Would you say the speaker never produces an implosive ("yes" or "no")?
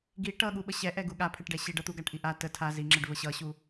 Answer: no